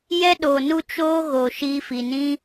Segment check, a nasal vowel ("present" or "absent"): present